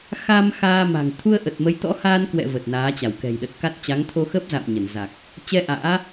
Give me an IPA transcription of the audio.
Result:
xa˧m xaː˧ma̤˨˩ŋ t̪ʰu˧ə̯ʔə˨˩t̚mə˨˦jt̪ɔ̰˧˥ haː˧nkwɛ̰˧˨ və˨˩t̚naː˨˦t͡ɕa˧˩wkɛ̤˨˩j ɗə˨˩t̚ka˦˥t̚ t͡ɕa˨˦ŋt̪ʰo˧xə˦˥p̚za̰ː˧˨m ɲə˧˩nza˨˩k̚ | t͡ɕɛ˧ ʔa̰ː˧˥

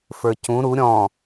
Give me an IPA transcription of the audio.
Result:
fə˞cũ ɾu ɾʲɔ̃

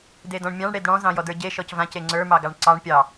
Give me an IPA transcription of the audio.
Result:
dedɔ̃ɳmʲɑ̃ɳ ɽedɽɔ̃ zɑ̃jɔdə˞ɟe ʃɔcvãc eŋ͡ǀə˞ mɑɡɑɳǀɑɳ pʲɑ

